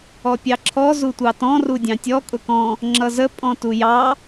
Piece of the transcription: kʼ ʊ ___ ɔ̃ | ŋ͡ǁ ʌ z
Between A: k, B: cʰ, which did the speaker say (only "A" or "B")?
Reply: A